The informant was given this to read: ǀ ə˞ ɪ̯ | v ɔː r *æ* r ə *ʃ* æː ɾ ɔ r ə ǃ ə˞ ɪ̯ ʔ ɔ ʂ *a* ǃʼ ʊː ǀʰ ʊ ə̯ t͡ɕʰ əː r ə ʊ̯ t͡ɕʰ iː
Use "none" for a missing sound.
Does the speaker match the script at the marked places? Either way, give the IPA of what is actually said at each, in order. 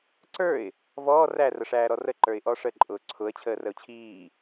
æ, ʂ, ə

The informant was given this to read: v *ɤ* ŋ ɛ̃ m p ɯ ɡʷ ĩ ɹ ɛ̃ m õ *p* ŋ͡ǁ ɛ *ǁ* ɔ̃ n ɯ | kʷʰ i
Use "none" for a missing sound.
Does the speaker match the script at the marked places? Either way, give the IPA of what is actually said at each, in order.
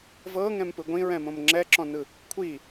ɤ, m, ǁ

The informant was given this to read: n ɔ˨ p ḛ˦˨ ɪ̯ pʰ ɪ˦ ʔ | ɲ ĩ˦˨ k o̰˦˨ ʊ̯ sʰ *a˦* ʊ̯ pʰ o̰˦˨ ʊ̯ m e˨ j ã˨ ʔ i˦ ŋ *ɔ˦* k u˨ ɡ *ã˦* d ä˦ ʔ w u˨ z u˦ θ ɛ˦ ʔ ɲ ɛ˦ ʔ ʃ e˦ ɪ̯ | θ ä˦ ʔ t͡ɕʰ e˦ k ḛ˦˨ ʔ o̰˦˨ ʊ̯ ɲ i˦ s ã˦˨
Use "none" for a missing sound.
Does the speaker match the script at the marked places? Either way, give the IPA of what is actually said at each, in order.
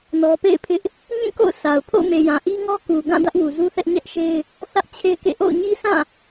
a˨, ɔ˦, ã˦˨

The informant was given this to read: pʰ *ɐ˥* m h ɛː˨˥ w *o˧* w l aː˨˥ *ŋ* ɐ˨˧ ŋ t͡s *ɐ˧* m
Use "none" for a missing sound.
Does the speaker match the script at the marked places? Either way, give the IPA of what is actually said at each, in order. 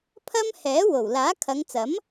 ɐ˥, o˨˩, kʰ, ɐ˨˥

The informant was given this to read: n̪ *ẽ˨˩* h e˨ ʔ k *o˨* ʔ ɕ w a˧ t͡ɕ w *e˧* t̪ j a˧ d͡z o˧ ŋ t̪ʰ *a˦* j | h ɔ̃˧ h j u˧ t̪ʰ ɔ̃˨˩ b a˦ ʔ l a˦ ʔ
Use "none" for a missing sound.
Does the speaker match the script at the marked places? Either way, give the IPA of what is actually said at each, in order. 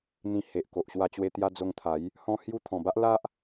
ĩ˨˩, o˨, e˧, a˨˦

